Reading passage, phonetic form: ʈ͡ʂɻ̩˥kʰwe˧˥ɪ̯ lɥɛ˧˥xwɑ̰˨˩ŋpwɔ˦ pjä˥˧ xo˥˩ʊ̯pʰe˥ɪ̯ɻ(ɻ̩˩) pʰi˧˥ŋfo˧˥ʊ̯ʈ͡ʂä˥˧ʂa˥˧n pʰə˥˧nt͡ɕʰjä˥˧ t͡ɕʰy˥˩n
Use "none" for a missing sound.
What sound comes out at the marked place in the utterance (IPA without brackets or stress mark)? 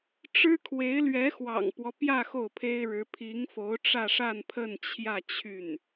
ɻ̩˧˥